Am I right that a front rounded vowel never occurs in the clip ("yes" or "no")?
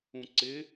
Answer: yes